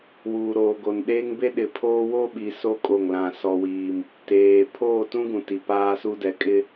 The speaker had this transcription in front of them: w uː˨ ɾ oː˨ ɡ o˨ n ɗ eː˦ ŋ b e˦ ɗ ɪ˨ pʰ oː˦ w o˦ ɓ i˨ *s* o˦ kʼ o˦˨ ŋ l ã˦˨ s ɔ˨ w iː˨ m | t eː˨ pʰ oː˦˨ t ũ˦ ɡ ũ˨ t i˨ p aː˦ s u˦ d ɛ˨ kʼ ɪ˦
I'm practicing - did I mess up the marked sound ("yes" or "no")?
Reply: no